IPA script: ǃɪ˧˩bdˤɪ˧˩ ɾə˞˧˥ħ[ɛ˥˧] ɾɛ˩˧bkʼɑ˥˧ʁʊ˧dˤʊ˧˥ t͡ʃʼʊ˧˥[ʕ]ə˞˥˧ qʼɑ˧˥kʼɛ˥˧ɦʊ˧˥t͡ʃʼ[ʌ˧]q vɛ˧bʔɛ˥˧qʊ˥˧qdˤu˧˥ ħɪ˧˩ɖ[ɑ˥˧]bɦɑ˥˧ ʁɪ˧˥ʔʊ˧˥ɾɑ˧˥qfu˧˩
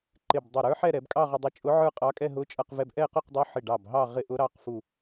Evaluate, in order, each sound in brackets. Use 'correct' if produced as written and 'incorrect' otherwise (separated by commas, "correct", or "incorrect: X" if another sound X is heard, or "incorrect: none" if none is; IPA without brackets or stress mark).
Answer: correct, correct, correct, incorrect: ɑ˧˩